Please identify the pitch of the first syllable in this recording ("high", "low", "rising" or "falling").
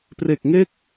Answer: low